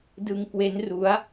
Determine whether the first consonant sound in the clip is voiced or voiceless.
voiced